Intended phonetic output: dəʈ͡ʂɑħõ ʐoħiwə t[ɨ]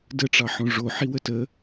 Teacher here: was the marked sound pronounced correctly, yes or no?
no